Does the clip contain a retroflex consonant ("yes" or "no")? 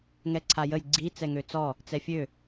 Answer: no